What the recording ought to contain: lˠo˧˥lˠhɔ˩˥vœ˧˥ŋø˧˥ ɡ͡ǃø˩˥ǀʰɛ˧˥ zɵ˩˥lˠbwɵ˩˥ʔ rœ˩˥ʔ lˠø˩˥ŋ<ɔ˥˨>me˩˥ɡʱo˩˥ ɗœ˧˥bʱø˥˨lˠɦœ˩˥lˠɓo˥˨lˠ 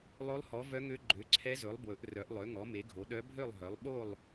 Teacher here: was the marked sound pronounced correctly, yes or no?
no